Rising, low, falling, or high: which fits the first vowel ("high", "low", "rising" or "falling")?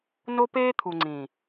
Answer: high